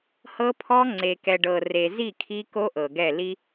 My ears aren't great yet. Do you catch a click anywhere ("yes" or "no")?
yes